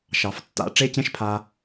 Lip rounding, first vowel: unrounded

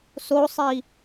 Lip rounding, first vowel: rounded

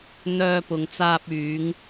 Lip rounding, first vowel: rounded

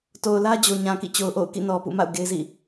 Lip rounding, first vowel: rounded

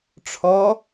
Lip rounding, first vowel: rounded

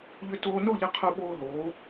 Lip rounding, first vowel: rounded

